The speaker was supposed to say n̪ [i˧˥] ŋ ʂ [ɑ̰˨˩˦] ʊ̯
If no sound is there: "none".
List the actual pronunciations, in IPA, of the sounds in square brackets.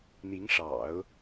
i˧˥, ɑ̰˨˩˦

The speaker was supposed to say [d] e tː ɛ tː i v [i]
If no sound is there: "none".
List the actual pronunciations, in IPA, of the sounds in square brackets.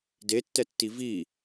d, i

